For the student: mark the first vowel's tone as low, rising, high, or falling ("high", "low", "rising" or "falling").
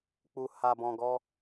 low